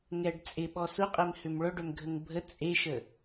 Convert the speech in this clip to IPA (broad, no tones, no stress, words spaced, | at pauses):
ŋɛɖ t͡sʼɪɓɔ sʊqʼɛmhʏm ɭœɖœmɡʱəŋ bʱə t͡sʼeʃə